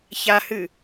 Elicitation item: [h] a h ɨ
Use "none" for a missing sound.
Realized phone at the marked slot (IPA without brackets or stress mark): ç